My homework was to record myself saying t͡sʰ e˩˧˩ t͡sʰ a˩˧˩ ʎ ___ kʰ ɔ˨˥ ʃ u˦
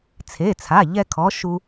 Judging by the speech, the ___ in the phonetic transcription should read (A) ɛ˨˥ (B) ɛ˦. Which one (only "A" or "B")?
B